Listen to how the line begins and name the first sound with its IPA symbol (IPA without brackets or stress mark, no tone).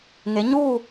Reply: ŋ